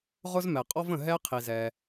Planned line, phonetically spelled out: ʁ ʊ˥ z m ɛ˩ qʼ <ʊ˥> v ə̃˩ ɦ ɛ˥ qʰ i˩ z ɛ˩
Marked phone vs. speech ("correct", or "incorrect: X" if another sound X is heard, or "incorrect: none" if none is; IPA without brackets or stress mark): incorrect: ɔ˥